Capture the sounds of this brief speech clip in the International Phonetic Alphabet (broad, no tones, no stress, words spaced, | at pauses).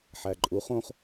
ħæǃʼu χõχ